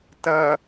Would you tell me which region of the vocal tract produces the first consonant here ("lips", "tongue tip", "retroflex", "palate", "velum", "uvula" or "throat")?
tongue tip